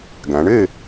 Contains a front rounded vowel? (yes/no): no